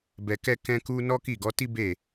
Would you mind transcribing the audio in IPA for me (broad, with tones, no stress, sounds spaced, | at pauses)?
b ɛ˧ k ɛ˦ k ɛ̃˦ k u˦ n ɔ˦ k i˦˨ ɡ ɔ˨˦ t i˦ b e˦˨